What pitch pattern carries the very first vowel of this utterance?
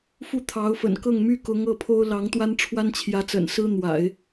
falling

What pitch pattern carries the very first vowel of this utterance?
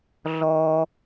low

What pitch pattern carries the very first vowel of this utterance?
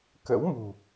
rising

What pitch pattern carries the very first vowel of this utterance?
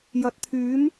rising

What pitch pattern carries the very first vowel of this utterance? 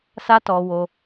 high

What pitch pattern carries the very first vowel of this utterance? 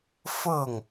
falling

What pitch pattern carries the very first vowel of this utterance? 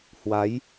rising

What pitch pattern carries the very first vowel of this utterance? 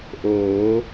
rising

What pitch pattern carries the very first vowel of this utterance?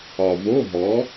low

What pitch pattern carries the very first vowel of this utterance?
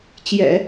low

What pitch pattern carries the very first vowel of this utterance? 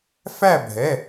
falling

